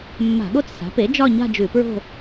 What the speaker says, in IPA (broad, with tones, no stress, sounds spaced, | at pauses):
mː a̤˧˩˧ ɠ o˥˧ t͡s s a̤˩˥ p e˩˥ d͡ʒ ɒ˥˧ ɲ a̤˥˧ d͡ʒ ʉ˧˩˧ p ɹ o̤˥˧